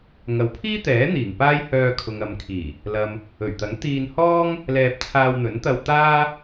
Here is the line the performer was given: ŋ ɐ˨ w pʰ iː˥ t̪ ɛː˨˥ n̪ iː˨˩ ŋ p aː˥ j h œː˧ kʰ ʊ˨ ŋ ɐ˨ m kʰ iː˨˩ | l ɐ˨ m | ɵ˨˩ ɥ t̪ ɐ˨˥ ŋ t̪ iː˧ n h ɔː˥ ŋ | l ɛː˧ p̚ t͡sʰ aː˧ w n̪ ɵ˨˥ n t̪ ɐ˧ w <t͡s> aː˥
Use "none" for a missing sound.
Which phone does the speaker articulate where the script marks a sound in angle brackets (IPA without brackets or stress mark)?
t̪